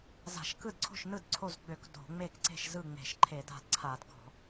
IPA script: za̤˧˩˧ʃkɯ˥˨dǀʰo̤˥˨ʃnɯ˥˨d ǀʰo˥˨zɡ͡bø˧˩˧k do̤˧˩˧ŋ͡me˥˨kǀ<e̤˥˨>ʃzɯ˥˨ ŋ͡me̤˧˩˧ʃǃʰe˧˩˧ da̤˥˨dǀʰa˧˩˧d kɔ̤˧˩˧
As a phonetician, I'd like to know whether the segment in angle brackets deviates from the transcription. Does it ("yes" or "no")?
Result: no